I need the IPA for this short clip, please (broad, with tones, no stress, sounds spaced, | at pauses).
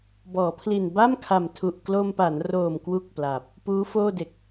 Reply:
b ɔː˩˦ pʰ l i˨˩ n b a˥˩ m kʰ a˨˩ m tʰ u˨˩ ʔ k l o˧ m p a˩˦ n r oː˨˩ m k w u˥˩ k̚ p l aː˨˩ p̚ | p uː˦˥ f oː˥˩ d e˨˩ k̚